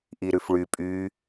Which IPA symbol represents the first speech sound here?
ʔ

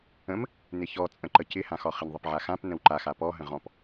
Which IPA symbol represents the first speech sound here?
ə̃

